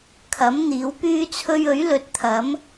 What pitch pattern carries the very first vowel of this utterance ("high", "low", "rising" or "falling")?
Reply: rising